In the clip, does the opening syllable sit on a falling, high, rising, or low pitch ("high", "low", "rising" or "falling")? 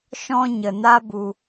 high